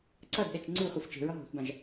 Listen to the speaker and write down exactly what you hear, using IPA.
ǀ ʌ d ɗ ɛ t͡ʃ ŋ͡ǀ ɨ χʷ ɨ f t͡ʃ e̤ ɹ ʌ ɦ o̤ θ b ã ʒ

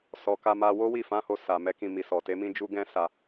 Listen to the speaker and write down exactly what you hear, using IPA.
s ɔ˨ k a˧ m a˧ w o˦ w i˦˨ f ã˨˦ h o˧ s a˨ m ɛ˨˦ k ĩ˧ m i˨ s ɔ˨ t e˨˦ m ĩ˦ d͡ʒ u˦ ɡ ɛ̃˦ s a˧

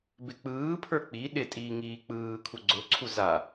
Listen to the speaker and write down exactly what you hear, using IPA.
b ɪ k͡p ɯː pʰ ə˞ k͡p i ɗ ɪ tʼ iː ŋ iː k͡p ɯː kʰ u ɡ͡ǀ ʊ ǀʰ u z a

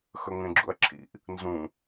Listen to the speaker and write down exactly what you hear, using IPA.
x ɵ ŋ ẽ ɡ͡ǁ ṵ ɐ̯ ǁʰ ḭ ʔ | n z ũ

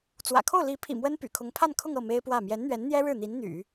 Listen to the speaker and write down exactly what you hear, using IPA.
t͡s w ä̰˨˩ kʰ o˥˩ ʊ̯ l i˧˥ pʰ ḭ˨˩ m w ə˥ n p y̰˨˩ kʰ ʊ˧˥ ŋ pʰ a˥˧ n kʰ ʊ˥˧ ŋ ɤ˥˩ m e˥ ɪ̯ p w ä˥˩ m j ɛ˧˥ n n̪ ɥ ɛ˧˥ n n̪ j ɛ˥ ɻ ɻ̩˥˩ n̪ i˧˥ n n̪ y̰˨˩˦

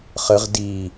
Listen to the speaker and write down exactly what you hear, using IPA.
χ ə ʁ d i

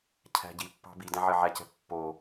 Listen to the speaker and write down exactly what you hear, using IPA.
cʰ æ̤ ɟ i pː ɑ̤ b i d æ̃ ʕ ɪ ʕ æ c ɛ̤ pː o

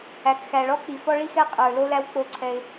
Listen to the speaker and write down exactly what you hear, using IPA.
æ˨ k x æ˨ ɭ ɔ˦ k͡p i˨ f ɔ˦ ɭ i˦ x ɛ˦ qʼ ə˞˨ l o˦ l æ˦ w k͡p o˦ ǀʰ ɛ˦ ɪ̯

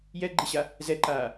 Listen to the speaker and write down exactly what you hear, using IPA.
j ɛ ɡ͡ǃ i ɕ a | z ɛ ǃ aː

